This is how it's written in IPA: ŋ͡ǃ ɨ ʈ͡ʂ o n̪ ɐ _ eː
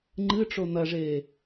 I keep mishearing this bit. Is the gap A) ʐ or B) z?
A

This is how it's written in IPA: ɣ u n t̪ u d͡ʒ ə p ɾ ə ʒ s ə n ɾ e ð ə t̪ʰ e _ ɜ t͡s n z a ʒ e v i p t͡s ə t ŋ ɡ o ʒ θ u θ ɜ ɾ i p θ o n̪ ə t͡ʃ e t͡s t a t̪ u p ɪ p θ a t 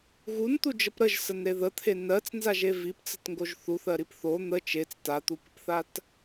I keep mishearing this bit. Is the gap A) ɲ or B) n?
B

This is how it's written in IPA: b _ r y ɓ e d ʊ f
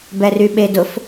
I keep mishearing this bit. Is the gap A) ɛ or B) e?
A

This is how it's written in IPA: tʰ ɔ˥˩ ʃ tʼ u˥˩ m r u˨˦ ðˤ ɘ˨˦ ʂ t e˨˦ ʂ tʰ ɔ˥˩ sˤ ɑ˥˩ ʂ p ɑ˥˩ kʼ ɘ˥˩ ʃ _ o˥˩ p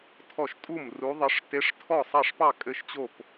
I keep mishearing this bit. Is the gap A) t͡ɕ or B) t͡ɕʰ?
A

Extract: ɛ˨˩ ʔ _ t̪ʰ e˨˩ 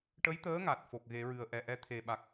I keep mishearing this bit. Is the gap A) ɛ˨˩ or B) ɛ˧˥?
B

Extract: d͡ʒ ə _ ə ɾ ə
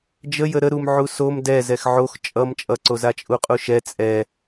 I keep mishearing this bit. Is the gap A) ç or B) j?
B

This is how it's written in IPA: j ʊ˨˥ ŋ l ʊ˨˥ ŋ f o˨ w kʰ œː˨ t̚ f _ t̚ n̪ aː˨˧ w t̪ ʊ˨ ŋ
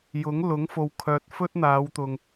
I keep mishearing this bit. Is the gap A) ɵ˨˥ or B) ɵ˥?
B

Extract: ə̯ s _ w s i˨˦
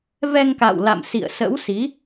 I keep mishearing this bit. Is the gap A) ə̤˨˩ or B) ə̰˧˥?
B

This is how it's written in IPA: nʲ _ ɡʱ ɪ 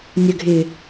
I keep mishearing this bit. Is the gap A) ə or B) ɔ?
A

